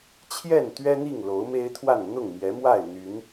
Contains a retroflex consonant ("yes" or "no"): no